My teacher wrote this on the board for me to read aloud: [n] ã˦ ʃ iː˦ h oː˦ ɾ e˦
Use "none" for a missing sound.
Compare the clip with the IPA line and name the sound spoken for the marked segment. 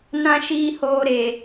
n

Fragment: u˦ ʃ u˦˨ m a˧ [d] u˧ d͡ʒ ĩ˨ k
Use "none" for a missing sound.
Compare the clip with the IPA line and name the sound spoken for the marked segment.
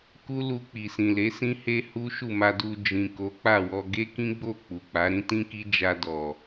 d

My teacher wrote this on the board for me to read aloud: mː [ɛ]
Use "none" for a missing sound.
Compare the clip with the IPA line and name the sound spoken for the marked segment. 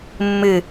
ɨ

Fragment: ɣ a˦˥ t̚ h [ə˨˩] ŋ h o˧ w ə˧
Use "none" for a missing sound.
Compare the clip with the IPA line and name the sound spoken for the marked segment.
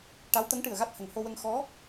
ə˨˩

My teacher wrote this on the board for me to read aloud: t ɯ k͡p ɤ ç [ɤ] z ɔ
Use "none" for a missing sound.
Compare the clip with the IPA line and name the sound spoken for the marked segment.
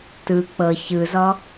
ɯ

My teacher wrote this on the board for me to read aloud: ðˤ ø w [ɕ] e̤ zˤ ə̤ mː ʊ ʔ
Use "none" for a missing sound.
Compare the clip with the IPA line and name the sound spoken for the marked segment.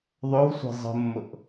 sʷ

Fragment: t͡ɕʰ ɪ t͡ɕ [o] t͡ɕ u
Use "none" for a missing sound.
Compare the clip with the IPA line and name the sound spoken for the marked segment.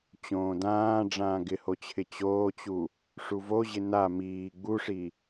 oː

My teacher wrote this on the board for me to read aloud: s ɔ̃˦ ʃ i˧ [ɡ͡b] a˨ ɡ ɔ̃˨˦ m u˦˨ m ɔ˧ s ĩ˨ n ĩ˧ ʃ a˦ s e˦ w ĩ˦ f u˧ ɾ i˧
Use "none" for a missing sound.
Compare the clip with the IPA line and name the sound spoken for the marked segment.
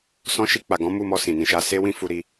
k͡p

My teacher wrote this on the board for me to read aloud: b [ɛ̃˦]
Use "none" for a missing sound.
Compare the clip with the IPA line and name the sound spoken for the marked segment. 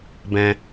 ɛ̃˦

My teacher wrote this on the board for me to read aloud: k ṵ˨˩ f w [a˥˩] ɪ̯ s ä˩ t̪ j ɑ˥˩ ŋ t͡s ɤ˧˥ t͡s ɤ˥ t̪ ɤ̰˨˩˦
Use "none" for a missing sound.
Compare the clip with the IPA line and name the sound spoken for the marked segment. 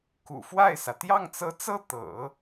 a˥˩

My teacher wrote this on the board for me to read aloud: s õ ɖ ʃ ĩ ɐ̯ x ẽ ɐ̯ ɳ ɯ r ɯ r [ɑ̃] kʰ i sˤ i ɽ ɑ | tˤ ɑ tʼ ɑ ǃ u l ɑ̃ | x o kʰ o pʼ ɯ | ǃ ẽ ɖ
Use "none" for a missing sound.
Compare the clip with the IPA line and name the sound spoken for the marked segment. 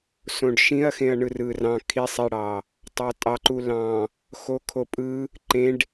ɑ̃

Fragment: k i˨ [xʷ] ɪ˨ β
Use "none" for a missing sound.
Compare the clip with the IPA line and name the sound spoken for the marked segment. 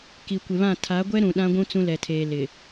kʷ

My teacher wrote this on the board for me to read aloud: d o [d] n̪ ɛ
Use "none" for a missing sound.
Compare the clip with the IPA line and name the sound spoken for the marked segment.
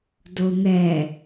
none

